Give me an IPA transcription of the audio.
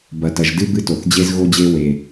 b ɐ˩ t ɐ˩ ʒ d ɨ˥ b ɨ˧ t o˩ θ d͡ʑ e˧ z ɣ o˧ d͡ʑ e˧ w e˩

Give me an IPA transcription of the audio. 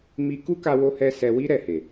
m i˧ k u˦ k a˧ w o˦ h ɛ˦ s ɛ˧ w i˦ ɾ ɛ˦˨ h e˨

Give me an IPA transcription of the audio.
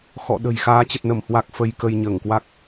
x ɔ̰˧˨ ɗ ə̤˨˩ j x aː˨˦ t͡ɕ ə˨˩ t̚ n ə˧˩ m h w a˨˩ k̚ f ə˧ j k ə˧ j ɲ əː˧˩ ŋ k w a˦˥ k̚

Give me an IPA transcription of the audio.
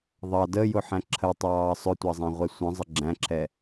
ðˤ ɑ d ə j ʊ ħ æ̃ ǁʰ ə tˤ ɑː sˤ ʊ tʷ ɑ zˤ æ̃ ʁʷ ɛ sʷ ə̃ zˤ ə ɡ͡ǁ æ̃ ǁʰ ɛ

